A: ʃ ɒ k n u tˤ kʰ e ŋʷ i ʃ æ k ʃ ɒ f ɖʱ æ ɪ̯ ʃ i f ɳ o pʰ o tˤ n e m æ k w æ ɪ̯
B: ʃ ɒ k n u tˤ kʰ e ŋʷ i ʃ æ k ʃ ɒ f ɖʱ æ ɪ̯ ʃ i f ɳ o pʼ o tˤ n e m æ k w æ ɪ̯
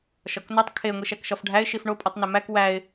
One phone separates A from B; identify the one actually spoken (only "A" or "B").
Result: B